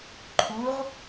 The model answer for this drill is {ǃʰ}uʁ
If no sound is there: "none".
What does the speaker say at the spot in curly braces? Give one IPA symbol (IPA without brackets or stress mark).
ǃʰ